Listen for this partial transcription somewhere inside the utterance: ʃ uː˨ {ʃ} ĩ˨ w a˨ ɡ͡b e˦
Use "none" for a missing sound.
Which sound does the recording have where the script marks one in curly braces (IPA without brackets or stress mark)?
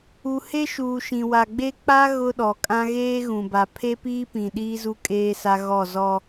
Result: ʃ